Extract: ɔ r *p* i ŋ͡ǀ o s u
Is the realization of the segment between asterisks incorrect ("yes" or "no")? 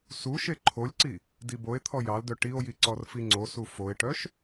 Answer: yes